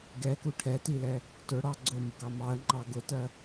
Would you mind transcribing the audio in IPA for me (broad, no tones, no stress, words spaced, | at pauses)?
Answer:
ɡɛku ʈʰɛtilɛ | tʊɽɑ ɡ͡ǀʊmʊɡɑ mɑə̯ŋ͡ǃɑ ɡʊtɜ